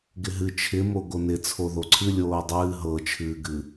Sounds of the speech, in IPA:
ɡ ɪ ɦ ɨ t͡ʃʰ ɪ m o ɡ o n ɪ t͡sʰ o ð o ǀʰ ɨ lʲ oː dˤ ɨː ɦ ɤ t͡ʃʰ ɨː ɡ ɨ

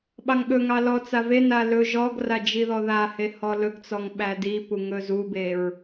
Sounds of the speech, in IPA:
ɓ ɑ ŋ ɠ ɵ ŋ ɑ l ɔ t͡s a v e n a l ɵ ʒ ɔ ɡ r a d͡ʒ i ð ɔ ð a h e h ɔ l ɵ ɡ t͡s ɔ ŋ ɓ æ d i p u ŋ ɵ z u b e ɹ

